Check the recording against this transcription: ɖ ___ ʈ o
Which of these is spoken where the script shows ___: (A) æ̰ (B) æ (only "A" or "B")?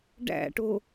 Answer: A